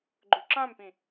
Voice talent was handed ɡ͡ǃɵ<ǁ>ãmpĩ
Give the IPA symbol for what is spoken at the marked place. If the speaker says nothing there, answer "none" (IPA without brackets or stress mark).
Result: ǁ